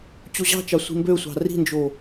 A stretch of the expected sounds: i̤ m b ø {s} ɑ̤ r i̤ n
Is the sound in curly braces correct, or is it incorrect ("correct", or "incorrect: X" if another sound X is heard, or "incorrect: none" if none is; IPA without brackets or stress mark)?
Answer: incorrect: sʷ